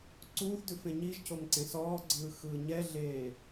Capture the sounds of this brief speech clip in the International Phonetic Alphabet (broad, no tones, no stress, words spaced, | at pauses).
ǀuːθdʉfẽ ɲiʒcomǀẽ sɔːɡ͡ǀɯːxɯː ɲɛɮeː